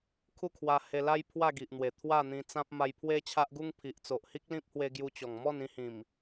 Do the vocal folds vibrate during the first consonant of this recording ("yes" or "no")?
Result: no